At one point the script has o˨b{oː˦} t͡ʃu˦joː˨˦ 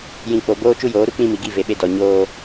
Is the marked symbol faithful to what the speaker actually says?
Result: yes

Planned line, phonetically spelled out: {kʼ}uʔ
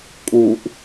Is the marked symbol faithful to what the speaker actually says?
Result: yes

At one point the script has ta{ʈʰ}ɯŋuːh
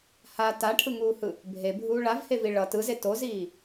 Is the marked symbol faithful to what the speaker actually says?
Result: yes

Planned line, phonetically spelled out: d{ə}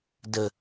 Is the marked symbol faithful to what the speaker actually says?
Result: yes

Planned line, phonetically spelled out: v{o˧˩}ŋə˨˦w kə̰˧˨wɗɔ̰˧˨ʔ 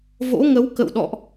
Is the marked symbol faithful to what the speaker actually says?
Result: no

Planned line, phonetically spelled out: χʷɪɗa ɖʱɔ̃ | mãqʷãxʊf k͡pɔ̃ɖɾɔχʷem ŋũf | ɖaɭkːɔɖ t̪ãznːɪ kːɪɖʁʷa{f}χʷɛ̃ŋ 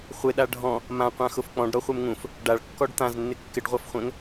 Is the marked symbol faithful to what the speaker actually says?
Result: yes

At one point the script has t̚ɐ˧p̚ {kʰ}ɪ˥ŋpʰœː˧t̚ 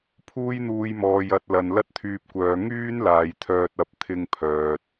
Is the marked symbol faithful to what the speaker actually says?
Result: no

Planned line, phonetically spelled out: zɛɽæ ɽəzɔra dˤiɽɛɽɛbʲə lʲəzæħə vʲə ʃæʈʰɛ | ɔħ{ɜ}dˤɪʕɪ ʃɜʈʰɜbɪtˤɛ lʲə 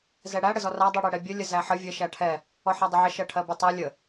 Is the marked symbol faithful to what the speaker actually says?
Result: no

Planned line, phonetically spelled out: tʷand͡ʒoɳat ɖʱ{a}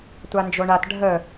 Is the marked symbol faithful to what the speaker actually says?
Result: no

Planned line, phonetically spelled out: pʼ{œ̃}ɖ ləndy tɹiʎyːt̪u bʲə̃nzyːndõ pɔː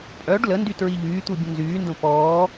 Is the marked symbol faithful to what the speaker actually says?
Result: no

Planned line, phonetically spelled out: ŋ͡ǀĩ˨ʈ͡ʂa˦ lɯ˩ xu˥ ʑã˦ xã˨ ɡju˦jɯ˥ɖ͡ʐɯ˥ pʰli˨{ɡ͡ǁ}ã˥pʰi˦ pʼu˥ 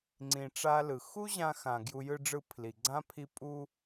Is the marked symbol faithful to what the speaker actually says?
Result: no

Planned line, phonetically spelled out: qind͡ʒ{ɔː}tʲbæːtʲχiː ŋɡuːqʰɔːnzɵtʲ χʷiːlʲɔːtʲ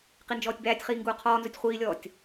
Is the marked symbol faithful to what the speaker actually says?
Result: yes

